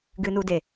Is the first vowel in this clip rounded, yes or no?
no